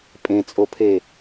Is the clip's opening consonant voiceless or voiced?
voiceless